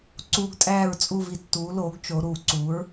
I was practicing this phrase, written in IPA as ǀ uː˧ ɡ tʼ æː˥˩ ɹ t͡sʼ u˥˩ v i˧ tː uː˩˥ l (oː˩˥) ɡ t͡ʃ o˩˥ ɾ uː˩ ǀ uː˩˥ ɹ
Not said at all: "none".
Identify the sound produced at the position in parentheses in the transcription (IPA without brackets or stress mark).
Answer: oː˩˥